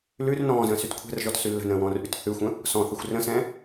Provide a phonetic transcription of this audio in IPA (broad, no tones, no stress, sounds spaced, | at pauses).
l ʉ r n ɔ̃ː z ə̃ː s y t kʷʰ ɛ̤ r ʒ ɔ t s y lː ə̤ n ə̃ː w ɔ̃ː r ʔ y t θ ʉ xʷ ə̃ | s ɔ̃ θ ə xʷ r ə̃ s ɛ̃